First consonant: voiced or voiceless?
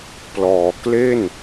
voiceless